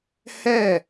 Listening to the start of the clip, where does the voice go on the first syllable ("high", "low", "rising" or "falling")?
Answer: falling